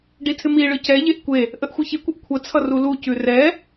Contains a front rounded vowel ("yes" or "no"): no